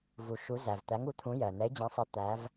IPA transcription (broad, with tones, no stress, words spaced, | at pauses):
vu˩ʃu˨˦zæ˩v t̪æ˨˦ŋu˨˦t̪ʰũ˨˦jɜ˩ n̪ɛ˨˦ɪ̯d͡ʑæ̃˨˦sˤɜ˨˦ t̪æ˨˦v